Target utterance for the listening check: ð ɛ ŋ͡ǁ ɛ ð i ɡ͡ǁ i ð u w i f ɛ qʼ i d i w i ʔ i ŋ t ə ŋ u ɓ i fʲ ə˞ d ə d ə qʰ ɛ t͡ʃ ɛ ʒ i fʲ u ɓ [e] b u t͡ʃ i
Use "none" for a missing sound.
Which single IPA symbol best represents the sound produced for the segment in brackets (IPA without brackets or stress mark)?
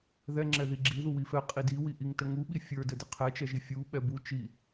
ɛ